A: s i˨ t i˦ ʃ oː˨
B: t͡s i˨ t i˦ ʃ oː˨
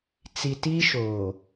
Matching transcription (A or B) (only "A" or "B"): B